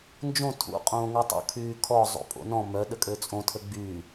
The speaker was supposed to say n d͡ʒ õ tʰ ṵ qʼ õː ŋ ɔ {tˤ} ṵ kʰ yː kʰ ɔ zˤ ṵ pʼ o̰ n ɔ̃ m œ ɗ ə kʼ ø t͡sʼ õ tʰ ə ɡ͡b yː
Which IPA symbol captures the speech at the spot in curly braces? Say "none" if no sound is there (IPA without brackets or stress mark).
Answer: tˤ